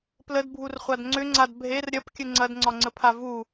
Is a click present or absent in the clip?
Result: present